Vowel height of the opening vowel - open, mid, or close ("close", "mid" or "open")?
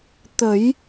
mid